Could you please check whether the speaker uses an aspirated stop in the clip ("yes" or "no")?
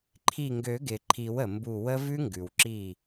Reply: yes